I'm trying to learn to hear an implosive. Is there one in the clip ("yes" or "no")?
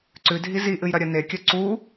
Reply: no